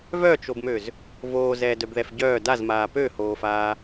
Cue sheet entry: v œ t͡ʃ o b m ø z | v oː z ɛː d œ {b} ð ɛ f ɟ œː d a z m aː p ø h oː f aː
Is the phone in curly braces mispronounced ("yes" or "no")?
no